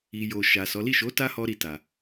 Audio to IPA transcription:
i˨ jo˨ ʃa˨ sɔ˨˦ li˦˨ʃo˨˦ ta˦hɔ˧ɾi˨ ta˨

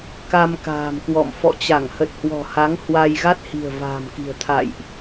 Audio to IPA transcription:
ka˧mka̤ː˨˩mkwɔ̰˧˨m fɔ̰˧˨t͡ɕa˧˩ŋ hə˨˩t̚hwɔ̤˨˩ha˨˦ŋ hwa˧j ɣa˦˥t̚hi̤˨˩ə̯ va̤ː˨˩mki̤˨˩ə̯ t̪ʰa̰˧˨jʔ

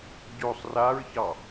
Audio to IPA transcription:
ɟosˤ raɹçɑ

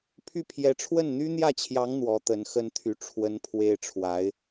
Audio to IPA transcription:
pʰy˥˩pʰjɛ˧˥ ʈ͡ʂʰwə˥˩nn̪y˥n̪jä˥˩t͡ɕʰjɑ˧˥ŋ n̪wɔ˧˥t̪ə˧˥n xə˥nt̪ʰy˧˥ ʈ͡ʂʰwə˥npʰwe˥ɪ̯ ʈ͡ʂʰwa˧˥ɪ̯

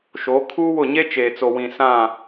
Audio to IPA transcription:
ʃo˨˦ kʰuː˦ wʊ˦˨ ɲe˦ t͡ʃeː˨t͡so˨ wĩ˨ sã˦˨

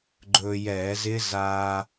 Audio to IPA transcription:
ɡ͡ǃɵː˧jɛː˧˩˧zɪ˦˥ zaː˧

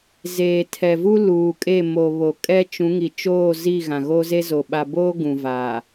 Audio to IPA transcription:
zeː˨tʰɛ˨vu˦ luː˨kʼe˦˨mo˨ βo˨kʼɛ˦ t͡ʃũ˨˦ŋi˨t͡ʃoː˦˨zi˦˨ ɣã˨ɣo˦ze˦zo˨ ɓa˨boː˦ ɡũ˨vaː˨

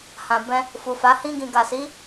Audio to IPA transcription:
hã˨bɛ̃˧ | fu˨fa˨˦ hĩ˧ɡĩ˨ɡa˨si˨˦

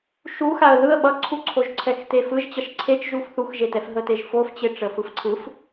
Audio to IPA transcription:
ʃuxaə̯ ðɯə̯ ɓʌǀʰuǀʰoʒ ǀʰɛxtefɯʒ t͡ɕʌʃǀʰet͡ʃʒuf θuxʒetɛf ɦəteʒfoft͡ɕe ʈ͡ʂəfɯfǀʰɯf

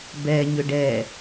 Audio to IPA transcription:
bɛ ɲʏɖɛ

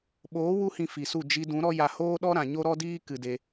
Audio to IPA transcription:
ɓoː˨˦wu˧hĩ˨ fi˨su˦˨ d͡ʒi˧dũ˨˦ ɾɔ˦ja˧ hoː˦ɗɔ˦ ɾã˨ɲo˦ɾɔ˦diː˦ kɨ˨de˧

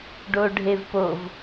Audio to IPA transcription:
ɖoɖʱevpov

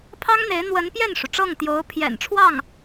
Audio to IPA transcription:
pʰɑ˥ŋn̪e˧˥ɪ̯ n̪wə˧˥n pjɛ˥˩nʂu˩ ʈ͡ʂɤ˥˩ŋt̪jo˧˥ʊ̯pʰjɛ̰˨˩nʈ͡ʂʰwɑ˥˩ŋ

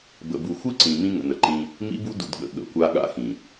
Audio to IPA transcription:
bə̰˨bu˨ xʷɨ˦ǀĩ˨ mĩ˦ŋə̰˨nə˨ǃĩ˦ | mḭ˦bu˦dṵ˨dɠə̰˨ ɠə̰˨˦kʷa˦ ɠa̰˦xĩ˨

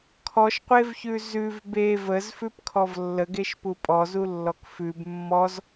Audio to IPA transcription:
kʰɔʃqʷevçʉ zʉv be vəzfʉpkʰɔv lːəɡeʃpu pʼɔzulːɔk fʉb mːɔz

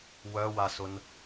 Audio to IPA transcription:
wœwasʊn

